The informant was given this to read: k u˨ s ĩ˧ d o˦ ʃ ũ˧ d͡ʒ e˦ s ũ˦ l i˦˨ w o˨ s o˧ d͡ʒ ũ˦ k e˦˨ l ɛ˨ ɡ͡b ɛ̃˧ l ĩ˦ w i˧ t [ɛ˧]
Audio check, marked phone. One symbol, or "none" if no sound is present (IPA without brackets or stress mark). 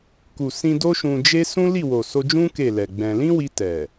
ɛ˨